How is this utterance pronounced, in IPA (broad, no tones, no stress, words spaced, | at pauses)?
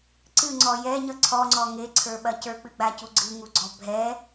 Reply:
ǀɨŋ͡ǀɔ jɛɲʌ ǀʰɔŋ͡ǀɔ ŋeǀʰə˞ɓɐ cə˞k͡pɨɡ͡bacu ɡ͡ǀɨŋuɡ͡ǀɔ bʱɛ